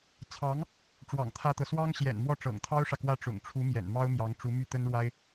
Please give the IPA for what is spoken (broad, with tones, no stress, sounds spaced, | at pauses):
t͡sʰ ɑ˧˥ ŋ | ʈ͡ʂ w ɑ̰˨˩ ŋ t̪ʰ ä˥ t̪ ɤ˨ s w ɑ˥ ŋ ɕ j ɛ̰˨˩ n m w ɔ˥˩ ʈ͡ʂ ɤ̰˨˩ ŋ t̪ʰ ɑ˥ ʊ̯ ʂ ä˨ k w ä˥˩ ʈ͡ʂ ʊ̰˨˩ ŋ ʈ͡ʂʰ u˧˥ m j ɛ̰˨˩ n m ɑ˥ ʊ̯ m j ɑ˧˥ ŋ ʈ͡ʂ u˧˥ m y˥˩ t̪ ə˥ n ɻ w a˥ ɪ̯